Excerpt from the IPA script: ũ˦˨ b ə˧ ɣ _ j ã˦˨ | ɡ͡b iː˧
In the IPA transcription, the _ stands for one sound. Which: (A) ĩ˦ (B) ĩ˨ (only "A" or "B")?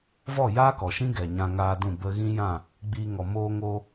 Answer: A